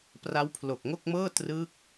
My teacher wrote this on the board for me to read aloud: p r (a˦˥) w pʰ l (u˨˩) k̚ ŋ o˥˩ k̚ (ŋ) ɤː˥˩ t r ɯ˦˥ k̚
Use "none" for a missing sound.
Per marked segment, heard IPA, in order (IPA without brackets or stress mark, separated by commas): a˦˥, o˨˩, m